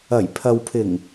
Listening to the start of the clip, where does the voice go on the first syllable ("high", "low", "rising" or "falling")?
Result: low